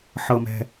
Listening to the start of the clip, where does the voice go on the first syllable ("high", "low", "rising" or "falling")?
low